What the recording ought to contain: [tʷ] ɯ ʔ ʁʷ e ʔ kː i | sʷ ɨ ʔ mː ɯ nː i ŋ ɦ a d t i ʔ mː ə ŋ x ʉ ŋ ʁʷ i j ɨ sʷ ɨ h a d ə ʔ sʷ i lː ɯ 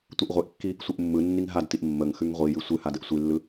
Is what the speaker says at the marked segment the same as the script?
yes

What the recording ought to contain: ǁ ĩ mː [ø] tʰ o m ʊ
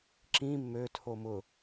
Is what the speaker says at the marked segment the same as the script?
yes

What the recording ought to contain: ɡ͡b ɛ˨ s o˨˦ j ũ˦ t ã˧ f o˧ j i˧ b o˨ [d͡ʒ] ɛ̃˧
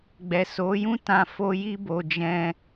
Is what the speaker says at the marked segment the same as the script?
yes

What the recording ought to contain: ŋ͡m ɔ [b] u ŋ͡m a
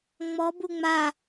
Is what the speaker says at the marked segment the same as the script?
yes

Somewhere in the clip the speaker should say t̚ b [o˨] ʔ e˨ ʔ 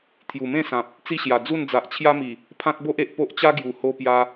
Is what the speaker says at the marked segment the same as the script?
no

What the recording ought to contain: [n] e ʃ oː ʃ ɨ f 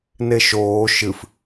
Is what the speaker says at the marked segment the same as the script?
yes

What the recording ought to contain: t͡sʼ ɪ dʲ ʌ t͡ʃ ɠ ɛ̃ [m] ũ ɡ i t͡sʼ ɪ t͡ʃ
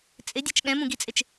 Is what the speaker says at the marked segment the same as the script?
yes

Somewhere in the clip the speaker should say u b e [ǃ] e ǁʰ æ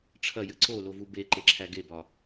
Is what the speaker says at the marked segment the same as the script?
yes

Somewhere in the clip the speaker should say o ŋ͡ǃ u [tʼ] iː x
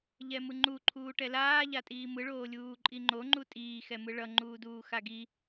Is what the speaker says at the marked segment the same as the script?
yes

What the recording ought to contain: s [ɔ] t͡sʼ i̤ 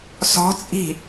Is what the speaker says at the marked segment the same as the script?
no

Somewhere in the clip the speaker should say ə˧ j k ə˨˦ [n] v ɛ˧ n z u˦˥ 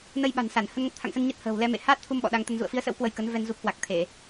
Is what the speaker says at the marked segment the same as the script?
yes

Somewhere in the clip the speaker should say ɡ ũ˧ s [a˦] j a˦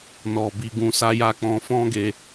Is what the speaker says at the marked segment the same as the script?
yes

